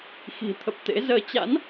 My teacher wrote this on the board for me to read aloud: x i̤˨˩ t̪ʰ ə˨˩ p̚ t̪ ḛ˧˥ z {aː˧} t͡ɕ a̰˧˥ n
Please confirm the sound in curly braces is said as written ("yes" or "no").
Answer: no